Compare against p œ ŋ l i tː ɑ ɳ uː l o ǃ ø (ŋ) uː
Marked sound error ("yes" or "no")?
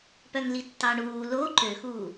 yes